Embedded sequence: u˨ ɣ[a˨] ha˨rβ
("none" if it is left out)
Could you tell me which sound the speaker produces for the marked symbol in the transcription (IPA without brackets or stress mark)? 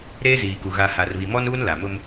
a˨